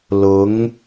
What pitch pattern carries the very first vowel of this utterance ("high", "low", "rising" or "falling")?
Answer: rising